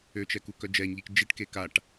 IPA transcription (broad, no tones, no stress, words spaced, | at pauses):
øt͡ʃɛ kukœd͡ʒɛɲʎik d͡ʒiʈke kaʈ